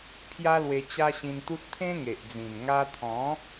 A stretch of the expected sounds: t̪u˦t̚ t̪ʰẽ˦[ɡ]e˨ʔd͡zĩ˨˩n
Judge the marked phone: incorrect: ŋ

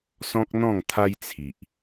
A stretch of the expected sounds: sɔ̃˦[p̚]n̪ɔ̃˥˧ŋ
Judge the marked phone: incorrect: k̚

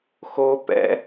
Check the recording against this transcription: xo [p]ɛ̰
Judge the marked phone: correct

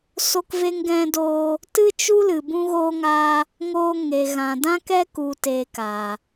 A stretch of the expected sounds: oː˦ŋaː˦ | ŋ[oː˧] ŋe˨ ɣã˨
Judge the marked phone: correct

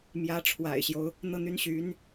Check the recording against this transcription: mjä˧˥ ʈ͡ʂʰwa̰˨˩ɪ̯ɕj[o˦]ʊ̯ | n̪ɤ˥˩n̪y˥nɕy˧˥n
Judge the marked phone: correct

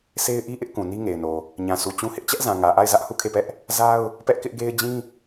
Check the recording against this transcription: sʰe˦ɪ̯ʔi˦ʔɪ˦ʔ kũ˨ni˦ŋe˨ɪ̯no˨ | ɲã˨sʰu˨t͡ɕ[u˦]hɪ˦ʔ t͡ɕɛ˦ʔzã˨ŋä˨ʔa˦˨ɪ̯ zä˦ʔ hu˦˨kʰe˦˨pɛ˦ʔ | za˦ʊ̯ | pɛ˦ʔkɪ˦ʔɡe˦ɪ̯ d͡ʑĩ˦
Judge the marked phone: incorrect: ũ˦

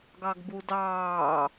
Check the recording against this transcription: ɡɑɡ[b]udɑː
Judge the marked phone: correct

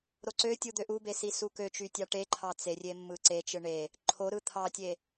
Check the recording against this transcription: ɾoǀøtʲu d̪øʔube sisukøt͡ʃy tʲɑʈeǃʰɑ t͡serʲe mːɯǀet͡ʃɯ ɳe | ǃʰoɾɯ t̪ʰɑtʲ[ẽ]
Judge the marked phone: incorrect: e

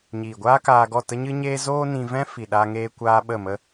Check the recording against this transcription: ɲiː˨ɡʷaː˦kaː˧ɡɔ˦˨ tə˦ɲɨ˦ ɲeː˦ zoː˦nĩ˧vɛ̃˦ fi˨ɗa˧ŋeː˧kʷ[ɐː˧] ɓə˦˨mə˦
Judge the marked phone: incorrect: aː˧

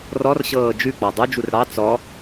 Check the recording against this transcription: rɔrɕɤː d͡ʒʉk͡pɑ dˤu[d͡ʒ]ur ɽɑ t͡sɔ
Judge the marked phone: correct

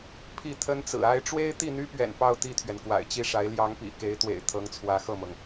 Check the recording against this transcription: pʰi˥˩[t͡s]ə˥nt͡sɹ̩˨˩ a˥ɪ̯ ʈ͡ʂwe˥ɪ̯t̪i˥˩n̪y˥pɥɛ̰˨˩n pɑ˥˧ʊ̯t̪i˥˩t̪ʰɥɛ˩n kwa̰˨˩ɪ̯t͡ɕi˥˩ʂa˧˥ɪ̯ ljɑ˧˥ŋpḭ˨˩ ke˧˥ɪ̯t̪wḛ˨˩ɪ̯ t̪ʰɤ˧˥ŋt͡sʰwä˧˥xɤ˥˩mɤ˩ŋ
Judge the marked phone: incorrect: t̪ʰ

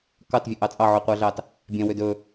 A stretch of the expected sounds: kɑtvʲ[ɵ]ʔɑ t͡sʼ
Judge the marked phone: incorrect: ø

